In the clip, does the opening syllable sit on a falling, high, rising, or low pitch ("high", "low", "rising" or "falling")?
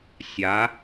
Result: rising